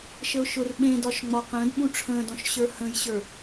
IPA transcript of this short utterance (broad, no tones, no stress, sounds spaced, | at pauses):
ʃ ə ʊ̯ ʃ ʊ r ɓ ẽ d ɒ ʃ ŋ͡m ɒ q ə̃ː d ɓ ũ ʈ͡ʂʰ ə̃ː d ɔ̃ ʃ ɕ ə˞ h ə̃ j ɕ ə˞